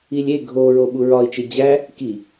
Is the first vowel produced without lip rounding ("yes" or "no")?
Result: yes